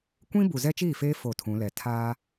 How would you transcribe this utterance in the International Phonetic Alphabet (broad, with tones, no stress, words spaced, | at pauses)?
kʷĩ˦ bu˨zɛ˦t͡ʃiː˦˨feː˦ fo˦˨tʰũ˨˦lɛ˨ tʰaː˦